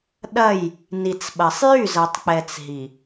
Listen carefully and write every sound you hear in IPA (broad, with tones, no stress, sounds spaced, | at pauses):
ɗ ɐ˦˨ j | n i˨ t͡s ɓ ɐ˨ sˤ j y˦˨ z ɐ˨ tˤ k͡p ɛ˨ t͡s ɦ i˨